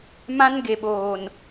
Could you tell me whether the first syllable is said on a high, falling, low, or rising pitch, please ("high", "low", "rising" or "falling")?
high